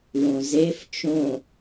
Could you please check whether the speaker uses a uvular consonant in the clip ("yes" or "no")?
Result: no